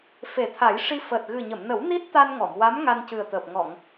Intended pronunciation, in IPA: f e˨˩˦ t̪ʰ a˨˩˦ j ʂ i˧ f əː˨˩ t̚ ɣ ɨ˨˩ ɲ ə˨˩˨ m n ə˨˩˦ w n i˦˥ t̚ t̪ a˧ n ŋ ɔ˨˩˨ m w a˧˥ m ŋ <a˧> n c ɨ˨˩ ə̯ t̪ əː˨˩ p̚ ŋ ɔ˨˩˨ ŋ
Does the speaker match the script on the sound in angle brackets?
yes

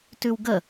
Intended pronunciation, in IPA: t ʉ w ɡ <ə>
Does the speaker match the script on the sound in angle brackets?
yes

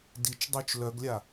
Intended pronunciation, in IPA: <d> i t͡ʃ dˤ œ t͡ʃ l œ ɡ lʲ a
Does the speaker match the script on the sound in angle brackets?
yes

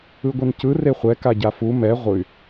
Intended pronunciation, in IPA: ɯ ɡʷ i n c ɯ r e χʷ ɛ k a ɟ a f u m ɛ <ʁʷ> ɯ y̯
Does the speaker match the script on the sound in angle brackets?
yes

